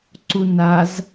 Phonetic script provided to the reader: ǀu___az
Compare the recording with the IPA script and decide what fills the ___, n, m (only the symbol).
n